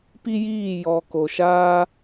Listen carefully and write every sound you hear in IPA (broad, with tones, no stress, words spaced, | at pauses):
pi˦jiː˦˨ jɔ˨ ko˨ʃaː˦